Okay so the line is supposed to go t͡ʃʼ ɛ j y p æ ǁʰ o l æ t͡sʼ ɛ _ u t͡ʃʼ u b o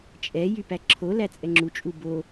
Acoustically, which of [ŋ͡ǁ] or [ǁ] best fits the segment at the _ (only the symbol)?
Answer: ŋ͡ǁ